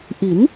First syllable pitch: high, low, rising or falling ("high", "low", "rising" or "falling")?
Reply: rising